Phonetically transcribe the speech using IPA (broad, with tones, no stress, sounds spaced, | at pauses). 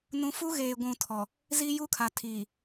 n ũ˨ f u˦ ɣ eː˨ ɡʷ ũ˨ tʰ ɔ˨ | z i˦ j u˦ kʰ a˨ tʰ iː˨